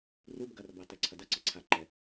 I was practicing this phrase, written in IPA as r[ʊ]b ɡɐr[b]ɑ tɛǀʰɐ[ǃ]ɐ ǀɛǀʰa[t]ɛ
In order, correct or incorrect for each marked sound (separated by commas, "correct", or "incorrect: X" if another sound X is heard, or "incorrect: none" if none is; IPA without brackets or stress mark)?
incorrect: u, correct, incorrect: d, incorrect: ǃ